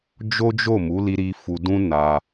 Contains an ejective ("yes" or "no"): no